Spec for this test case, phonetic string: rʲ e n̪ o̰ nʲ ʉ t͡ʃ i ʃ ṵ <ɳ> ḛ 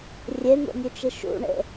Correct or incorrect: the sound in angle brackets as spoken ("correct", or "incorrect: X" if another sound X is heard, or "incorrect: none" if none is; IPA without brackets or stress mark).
correct